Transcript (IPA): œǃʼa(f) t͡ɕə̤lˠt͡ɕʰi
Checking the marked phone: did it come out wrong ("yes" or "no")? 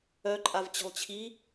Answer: yes